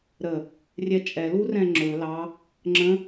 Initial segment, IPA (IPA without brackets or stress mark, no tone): ɾ